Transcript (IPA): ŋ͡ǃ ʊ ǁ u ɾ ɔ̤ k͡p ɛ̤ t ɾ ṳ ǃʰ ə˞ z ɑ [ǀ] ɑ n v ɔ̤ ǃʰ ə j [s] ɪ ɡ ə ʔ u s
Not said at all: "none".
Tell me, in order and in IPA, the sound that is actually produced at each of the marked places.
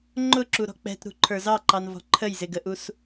ǃ, z

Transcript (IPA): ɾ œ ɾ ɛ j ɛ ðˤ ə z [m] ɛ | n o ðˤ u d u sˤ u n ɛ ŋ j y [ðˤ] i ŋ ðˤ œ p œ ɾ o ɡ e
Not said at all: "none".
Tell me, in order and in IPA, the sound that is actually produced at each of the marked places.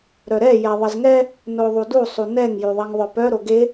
ŋ, ðˤ

